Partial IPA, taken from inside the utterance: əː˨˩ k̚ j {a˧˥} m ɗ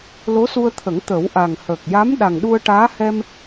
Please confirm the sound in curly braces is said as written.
yes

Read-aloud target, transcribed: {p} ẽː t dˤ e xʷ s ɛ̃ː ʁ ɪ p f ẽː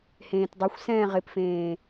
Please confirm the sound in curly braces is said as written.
no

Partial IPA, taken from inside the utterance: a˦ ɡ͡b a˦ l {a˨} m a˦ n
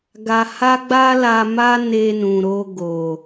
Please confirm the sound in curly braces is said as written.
no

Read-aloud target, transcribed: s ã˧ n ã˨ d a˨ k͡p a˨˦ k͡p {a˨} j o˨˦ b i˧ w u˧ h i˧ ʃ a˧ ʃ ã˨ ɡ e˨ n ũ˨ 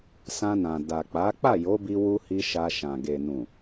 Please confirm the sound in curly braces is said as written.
no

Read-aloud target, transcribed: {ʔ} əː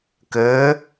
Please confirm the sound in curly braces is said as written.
no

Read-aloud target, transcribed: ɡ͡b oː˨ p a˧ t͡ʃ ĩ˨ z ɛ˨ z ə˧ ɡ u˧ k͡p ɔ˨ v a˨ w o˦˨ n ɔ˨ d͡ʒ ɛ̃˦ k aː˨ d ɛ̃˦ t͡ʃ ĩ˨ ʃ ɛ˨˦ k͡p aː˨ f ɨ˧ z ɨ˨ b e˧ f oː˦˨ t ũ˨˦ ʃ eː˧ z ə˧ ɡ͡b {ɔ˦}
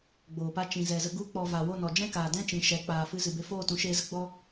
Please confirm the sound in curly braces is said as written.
yes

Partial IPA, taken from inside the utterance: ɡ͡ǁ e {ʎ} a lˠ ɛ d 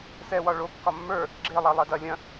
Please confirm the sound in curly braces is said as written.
no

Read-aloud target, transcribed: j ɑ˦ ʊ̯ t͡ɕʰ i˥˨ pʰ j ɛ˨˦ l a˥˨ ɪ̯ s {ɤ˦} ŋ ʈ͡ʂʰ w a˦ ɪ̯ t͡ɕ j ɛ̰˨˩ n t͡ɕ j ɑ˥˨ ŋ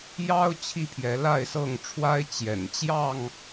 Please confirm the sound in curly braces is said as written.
no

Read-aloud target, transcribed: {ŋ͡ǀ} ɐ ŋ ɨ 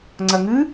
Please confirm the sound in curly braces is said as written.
yes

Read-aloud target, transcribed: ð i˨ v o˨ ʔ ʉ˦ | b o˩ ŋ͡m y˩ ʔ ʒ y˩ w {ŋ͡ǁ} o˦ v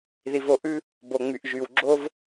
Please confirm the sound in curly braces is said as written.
no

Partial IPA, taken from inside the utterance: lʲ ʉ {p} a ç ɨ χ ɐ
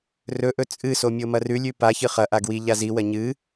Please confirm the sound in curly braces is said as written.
yes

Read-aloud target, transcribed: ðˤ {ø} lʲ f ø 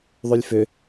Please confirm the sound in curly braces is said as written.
no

